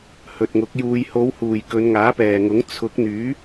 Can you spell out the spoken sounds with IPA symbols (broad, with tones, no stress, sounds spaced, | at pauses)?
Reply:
h ɵ˨ t̚ ŋ ʊ˨˥ k̚ j uː˨ j h o˨˧ w h uː˨˩ j k ɵ˨˧ n ŋ aː˨˥ p ɛː˨˩ ŋ ʊ˨˥ ŋ t͡sʰ ʊ˨˥ k̚ n̪ yː˨˥